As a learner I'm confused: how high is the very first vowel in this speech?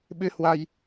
high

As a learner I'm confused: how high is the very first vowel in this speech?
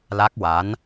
low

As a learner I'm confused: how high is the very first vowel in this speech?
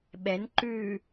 mid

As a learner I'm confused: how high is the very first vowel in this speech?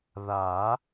low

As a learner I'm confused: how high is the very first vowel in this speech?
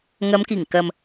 low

